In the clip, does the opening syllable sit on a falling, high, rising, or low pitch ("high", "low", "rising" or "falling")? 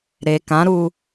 low